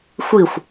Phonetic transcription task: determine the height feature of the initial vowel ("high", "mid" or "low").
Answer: high